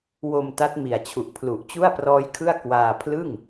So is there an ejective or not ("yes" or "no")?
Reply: no